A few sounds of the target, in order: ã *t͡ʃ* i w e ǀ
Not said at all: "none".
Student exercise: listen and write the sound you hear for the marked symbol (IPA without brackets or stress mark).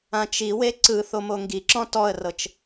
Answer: t͡ʃ